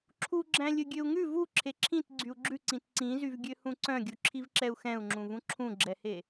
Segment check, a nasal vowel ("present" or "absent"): present